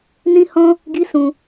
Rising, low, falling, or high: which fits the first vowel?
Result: high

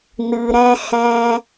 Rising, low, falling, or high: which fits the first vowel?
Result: low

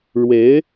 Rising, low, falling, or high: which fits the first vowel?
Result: rising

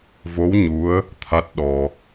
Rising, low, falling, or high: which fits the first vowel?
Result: rising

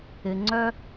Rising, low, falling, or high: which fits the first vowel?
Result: low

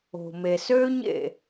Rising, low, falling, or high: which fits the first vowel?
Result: low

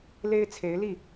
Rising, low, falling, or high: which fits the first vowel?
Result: high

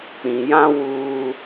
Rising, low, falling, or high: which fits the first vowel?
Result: low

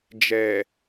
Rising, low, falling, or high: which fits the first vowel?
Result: low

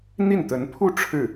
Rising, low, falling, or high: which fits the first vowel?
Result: falling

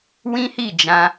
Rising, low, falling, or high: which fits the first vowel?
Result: high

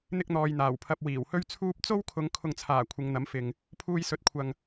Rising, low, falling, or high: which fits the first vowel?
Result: high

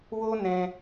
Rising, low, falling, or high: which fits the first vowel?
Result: high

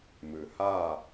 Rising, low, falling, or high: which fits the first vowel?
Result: low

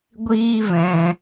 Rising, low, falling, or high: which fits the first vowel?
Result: high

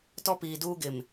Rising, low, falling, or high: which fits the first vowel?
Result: high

